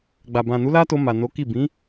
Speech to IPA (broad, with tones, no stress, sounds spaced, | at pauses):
ɡ͡b a˨ b ã˨ n u˨˦ l a˦ t o˧ m a˨ n o˨˦ k i˦˨ b ĩ˨˦